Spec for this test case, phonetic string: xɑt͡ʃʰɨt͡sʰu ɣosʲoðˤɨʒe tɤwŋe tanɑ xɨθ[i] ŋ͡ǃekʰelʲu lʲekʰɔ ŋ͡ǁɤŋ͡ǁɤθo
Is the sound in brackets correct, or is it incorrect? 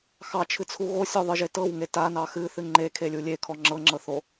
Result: incorrect